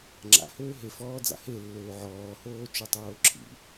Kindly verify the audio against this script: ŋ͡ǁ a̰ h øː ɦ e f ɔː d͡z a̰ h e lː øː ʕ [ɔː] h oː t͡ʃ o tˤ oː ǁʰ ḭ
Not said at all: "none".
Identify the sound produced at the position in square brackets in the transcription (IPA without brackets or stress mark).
ɔː